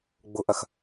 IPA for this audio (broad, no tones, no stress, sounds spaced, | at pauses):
ɡ͡b ʊ ʔ ɐ x